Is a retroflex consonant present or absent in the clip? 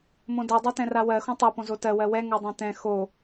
absent